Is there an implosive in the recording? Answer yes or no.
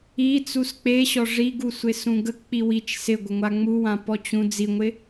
no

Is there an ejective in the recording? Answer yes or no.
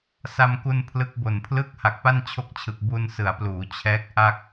no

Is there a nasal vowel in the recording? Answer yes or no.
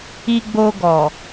no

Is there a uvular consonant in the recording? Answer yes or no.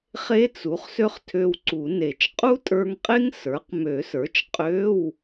yes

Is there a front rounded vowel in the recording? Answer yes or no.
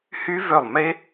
yes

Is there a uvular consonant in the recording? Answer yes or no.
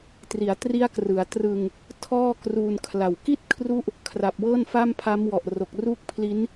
no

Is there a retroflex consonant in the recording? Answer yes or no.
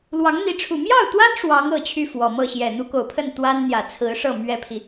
yes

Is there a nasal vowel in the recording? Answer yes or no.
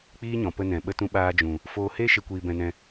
yes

